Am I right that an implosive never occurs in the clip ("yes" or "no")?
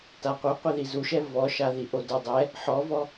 yes